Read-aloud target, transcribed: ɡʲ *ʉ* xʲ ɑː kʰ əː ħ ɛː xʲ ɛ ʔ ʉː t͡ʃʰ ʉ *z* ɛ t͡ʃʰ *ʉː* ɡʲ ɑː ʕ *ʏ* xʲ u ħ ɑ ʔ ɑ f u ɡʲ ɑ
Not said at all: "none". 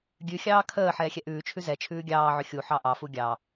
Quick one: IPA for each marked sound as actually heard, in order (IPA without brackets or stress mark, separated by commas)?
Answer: ʉ, z, ʉː, ʏ